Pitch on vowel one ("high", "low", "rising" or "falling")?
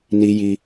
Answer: high